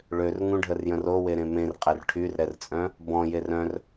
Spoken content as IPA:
ɭ ø r ŋ ũ ɖʱ ə r j ə̃ r o w e ɾ ẽ m ẽ r qʼ ɛ r ʈʰ y r ɾ ɛ r t͡sʼ œ̃ | b ɔ̃ j e r œ̃ r

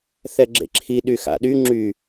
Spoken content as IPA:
θ ɛ ɡ͡ǁ ḛ ǁʰ i ɗ y x a̰ ɗ y ŋ͡ǁ y

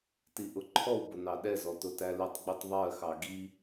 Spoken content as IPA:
t i ʔ ʊ ǃʰ ɔ w b ʊ n ɑ ɗ ɛ z ɔ t ʊ t æ l ɪ tˤ ɡ͡b i tˤ ðˤ ɜ x ɑ ɡ i

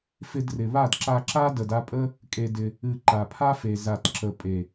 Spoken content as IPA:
f ɪ˧ d r ɪ˨ β a˦˨ d ǁ a˧ ǁ a˦ d ə˨ d a˧ pʼ ə˦ | kʼ e˧ d ɪ˧ | ɨ˨ ǃ a˨ pʰ a˦ f e˨ z a˨ t ǁ ə˨ pʼ e˨

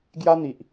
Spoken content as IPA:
ɡ j a˦ n̪ i˨ ʔ

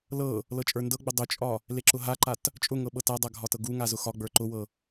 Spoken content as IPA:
l ɤ | l ɤ t͡ʃʼ ə˞ n d ɤ ɡ͡b ə dˤ ʊ t͡ʃʼ ɒ | l e ǁ ʊ ɦ a ǃ a t | t͡ʃʼ ʊ ŋ ɤ ɓ ɤ t a dˤ a ɡʱ ɒ t ɤ ɡ u ŋ a z ʊ x ɒ ɡ͡b ə˞ ǃ ʊ w ɤ

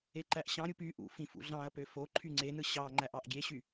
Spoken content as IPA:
e ǃ æ ʔ ɕ ɑ̃ ɾʲ u p y ʔ ṵ f ĩ f ṵ ɮ ɑ̃ ɐ̯ p ø f o ǃʰ y ŋ͡ǀ e n ɯ ɕ ɑ ŋ͡ǃ æ ʔ ɑ ʔ ɡʲ e ɕ y

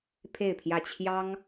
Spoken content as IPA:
pʰ e˥˧ ɪ̯ pʰ j ä˥˩ t͡ɕʰ j ɑ˥ ŋ

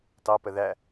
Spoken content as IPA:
t ɑ p ə ð æ

